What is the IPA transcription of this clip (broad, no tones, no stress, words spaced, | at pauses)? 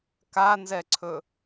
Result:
kanzɛǀʰɵ